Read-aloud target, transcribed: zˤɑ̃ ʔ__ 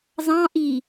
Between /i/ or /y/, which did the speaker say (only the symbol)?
i